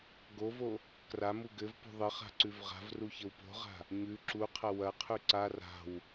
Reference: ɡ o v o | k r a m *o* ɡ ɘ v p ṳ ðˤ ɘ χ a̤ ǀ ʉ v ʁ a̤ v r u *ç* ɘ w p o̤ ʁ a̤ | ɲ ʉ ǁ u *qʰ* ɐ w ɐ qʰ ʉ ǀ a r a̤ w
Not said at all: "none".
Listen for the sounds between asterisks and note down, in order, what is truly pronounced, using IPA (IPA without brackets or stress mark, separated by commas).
u, ç, qʰ